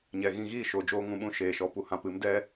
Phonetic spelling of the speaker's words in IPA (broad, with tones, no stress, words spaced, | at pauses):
ɲɛ˨ɣĩ˧ ɣiː˦˨ʃoː˨ d͡ʒoː˦ŋũ˨˦ɓũ˧ ʃeː˨ʃɔ˨˦pu˨ hã˧pɨ˨˦m dɛ˦